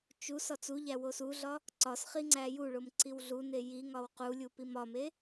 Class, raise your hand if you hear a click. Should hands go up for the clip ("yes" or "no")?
yes